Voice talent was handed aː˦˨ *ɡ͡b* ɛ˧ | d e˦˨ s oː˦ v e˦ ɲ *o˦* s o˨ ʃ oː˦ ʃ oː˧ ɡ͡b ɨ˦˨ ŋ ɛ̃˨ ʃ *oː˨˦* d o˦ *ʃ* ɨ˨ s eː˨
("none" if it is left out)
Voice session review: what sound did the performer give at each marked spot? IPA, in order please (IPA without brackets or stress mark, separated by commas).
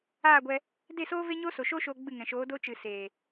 ɡʷ, o˦, oː˨˦, t͡ʃ